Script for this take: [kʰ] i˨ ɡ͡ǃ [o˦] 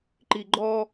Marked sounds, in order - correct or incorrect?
incorrect, incorrect

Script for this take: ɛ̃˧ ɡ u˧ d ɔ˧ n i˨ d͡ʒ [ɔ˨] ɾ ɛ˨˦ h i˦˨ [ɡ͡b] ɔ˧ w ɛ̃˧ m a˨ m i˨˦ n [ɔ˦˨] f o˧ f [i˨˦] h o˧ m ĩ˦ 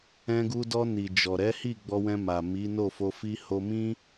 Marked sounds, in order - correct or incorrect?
correct, correct, incorrect, incorrect

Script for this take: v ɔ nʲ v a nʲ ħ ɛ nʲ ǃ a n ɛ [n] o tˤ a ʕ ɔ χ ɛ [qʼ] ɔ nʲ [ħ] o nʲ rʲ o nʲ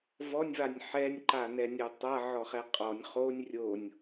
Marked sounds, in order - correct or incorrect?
incorrect, correct, incorrect

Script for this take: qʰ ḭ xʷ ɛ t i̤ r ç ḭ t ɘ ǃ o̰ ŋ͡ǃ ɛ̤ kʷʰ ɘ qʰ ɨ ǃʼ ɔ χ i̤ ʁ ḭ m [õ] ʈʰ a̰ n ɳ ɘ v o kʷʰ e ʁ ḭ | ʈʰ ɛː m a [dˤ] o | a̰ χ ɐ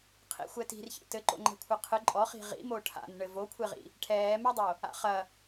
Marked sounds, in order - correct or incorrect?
incorrect, correct

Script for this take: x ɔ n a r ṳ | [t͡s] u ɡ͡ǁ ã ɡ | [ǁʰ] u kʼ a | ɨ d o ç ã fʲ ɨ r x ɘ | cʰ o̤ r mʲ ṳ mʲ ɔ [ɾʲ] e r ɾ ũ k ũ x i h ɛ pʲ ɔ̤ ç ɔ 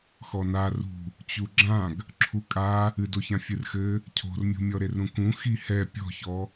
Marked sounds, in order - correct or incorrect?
incorrect, correct, incorrect

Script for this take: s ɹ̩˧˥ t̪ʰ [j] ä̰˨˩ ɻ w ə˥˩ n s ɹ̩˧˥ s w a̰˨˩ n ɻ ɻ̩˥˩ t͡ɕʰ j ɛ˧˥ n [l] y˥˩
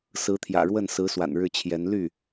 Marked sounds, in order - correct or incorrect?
correct, correct

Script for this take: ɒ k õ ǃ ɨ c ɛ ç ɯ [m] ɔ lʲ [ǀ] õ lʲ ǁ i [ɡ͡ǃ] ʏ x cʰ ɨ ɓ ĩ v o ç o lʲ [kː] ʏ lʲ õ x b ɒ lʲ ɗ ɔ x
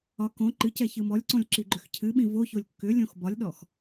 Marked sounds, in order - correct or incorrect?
correct, correct, correct, correct

